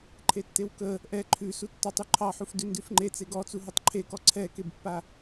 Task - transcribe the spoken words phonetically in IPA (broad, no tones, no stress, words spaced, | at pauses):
ǃʰetːewkə | ʔɛ ǃʰʉsu tːɔtˤʉ ǃʰɑħuf dʉndʉfŋ͡ǃe t͡seɡɔt͡su ɦutˤǃʰekɔ ǀʰɛkebpːa